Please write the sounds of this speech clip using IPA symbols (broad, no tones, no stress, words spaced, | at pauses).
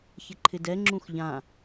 çɪǃʰɪdɛŋ͡ǁũx ʎã